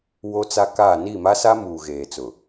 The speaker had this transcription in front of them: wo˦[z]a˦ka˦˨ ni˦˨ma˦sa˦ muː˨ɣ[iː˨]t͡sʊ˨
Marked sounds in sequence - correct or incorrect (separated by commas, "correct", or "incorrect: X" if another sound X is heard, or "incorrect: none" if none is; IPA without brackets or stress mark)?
incorrect: t͡s, incorrect: eː˨